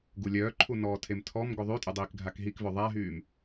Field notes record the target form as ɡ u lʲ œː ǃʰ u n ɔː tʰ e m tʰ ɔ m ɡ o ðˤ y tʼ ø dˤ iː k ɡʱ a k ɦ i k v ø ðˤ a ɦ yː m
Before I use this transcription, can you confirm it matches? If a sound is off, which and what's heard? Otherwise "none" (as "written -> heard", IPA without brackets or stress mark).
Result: none